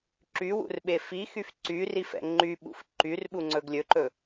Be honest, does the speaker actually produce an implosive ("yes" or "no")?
yes